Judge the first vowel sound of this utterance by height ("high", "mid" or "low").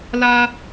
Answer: low